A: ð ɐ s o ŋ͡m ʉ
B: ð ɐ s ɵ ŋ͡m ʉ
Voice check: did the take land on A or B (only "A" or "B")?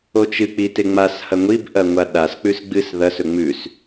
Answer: B